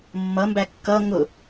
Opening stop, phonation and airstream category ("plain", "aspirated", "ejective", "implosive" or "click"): plain